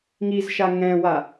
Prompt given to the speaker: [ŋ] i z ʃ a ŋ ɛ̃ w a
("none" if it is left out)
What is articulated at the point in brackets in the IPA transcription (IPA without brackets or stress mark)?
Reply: ŋ